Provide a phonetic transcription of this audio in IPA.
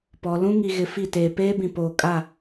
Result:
p ɔ˨ l ũ˦ ŋ i˨ ɣ ɪ˨ f i˦˨ t eː˨ p eː˦ b ĩ˨ p oː˨ kʼ a˦˨

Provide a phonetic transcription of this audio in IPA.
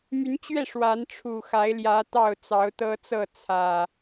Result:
m y˨˦ n t͡ɕ ɥ ɛ˥˨ ʂ w a˨˦ n ʈ͡ʂʰ u˨˩ x a˨˦ ɪ̯ l j ä˨˦ t̪ ɑ˥˨ ʊ̯ t͡s ɑ˨˦ ʊ̯ t̪ ɤ˦ t͡s ɤ˥˨ t͡sʰ ä˨˩

